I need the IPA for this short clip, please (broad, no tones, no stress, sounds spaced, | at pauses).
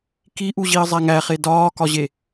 k i ʔ u ʑ i ə̯ zˤ æ ŋ æ χ e d ɒː k ɒ ʑ e